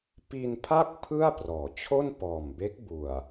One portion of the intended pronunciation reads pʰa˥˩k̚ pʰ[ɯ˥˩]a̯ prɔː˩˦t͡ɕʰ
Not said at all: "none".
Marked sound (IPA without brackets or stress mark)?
ɯ˥˩